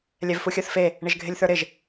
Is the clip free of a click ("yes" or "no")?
yes